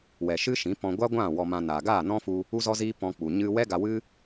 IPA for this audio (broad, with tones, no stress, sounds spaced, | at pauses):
w ɛ˨ ʃ ɨ˦ ʃ ĩ˨˦ p ɔ̃˧ ɡʷ a˦ ɡʷ ã˦˨ w ɔ˧ m ã˧ n aː˨ ɡ aː˦˨ n ɔ̃˦ f u˧ | u˦ z ɔ˦ z iː˦ p ɔ̃˧ k͡p u˨ ɲ ɨ˧ w ɛ˦ ɡ a˧ w ɨ˦